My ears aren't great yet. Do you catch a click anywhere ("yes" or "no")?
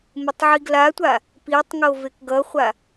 no